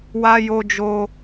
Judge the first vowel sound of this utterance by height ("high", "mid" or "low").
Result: low